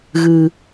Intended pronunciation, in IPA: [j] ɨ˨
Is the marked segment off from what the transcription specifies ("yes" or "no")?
yes